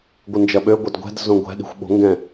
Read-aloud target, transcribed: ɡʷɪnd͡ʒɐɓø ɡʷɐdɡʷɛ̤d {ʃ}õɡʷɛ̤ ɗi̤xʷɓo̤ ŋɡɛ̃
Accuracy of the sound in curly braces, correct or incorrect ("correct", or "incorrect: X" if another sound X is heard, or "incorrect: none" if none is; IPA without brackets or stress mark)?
incorrect: z